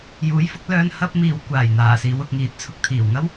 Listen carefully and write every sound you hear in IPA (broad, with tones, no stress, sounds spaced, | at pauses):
j uː˨˥ j f ʊ˨˥ k̚ l œː˧ n h ɐ˧ p̚ m iː˨ w kʷ aː˨˩ j n̪ aː˨˩ s iː˨˧ w ʊ˨ k̚ ŋ iː˨ t̚ t͡sʰ ʊ˧ k̚ t̪ʰ iː˨˩ w ŋ ɐ˥ w